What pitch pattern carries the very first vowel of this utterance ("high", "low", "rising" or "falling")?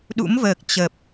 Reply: rising